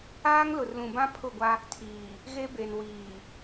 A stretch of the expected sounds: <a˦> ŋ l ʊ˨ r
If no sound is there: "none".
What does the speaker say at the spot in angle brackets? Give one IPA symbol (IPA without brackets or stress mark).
aː˦